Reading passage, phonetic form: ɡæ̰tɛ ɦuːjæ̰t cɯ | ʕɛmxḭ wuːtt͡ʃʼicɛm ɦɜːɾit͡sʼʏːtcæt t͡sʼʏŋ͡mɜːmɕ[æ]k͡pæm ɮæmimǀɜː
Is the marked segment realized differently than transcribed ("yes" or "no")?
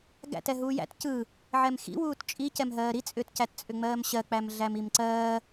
yes